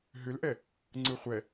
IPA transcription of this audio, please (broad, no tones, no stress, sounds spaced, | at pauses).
ɦ ʏ l ʔ ɛ | ŋ͡ǀ ɯ χʷ ɛ